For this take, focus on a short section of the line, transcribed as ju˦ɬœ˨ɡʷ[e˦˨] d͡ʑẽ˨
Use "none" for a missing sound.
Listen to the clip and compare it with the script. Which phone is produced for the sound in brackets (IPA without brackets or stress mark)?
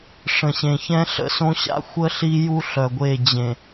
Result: e˦˨